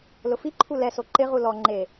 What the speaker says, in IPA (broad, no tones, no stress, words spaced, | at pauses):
lʊfiǃʰu lɛso ǃɪʁu lɔ ŋ͡ǃe